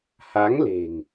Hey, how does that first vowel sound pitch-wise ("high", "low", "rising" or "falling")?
rising